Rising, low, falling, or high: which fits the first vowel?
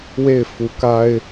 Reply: falling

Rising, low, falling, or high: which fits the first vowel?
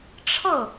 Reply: falling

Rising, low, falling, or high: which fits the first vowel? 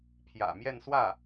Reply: low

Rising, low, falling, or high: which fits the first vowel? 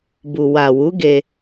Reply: low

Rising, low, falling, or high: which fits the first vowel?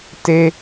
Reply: low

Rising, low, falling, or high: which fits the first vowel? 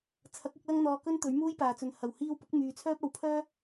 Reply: rising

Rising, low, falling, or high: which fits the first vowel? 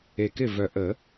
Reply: low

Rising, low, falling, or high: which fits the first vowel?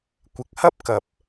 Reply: rising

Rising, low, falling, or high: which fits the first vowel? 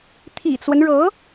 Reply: low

